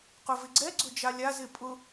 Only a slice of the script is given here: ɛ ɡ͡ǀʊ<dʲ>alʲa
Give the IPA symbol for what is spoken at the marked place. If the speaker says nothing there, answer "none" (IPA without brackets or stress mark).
d͡ʒ